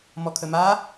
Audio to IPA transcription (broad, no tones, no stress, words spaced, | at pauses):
mɔkʰəma